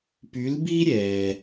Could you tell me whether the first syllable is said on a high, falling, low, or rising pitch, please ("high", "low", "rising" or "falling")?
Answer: rising